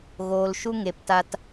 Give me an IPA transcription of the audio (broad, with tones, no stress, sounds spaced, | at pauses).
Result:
ɣ oː˨ l ʃ u˧ ŋ e˨ p t a˧ t